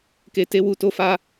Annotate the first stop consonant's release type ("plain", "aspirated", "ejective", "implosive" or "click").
plain